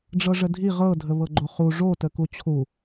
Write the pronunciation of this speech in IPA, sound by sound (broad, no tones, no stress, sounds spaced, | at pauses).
ɖ͡ʐ ɤ ʐ ə dʱ i ʁ ɤ dʱ ə β ɤ ɡ͡ǃ o χ u ʐ o t ə k u t͡ɕʰ u